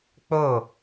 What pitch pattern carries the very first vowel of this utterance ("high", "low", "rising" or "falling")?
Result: falling